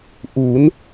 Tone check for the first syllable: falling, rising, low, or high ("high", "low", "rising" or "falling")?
rising